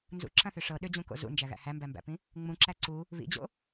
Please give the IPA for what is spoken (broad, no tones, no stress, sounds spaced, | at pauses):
n z ṵ ǁ ɐ̃ θ ʏ ʂ ɤ ɗ ʏ d͡ʑ ũ k o̰ z ṵ n d͡ʒ æ ɣ æ̰ h æ m b æ m b æ̰ p ĩ | ŋ͡m ũ ǁ æ ǀ u | β ḭ d͡ʑ o̰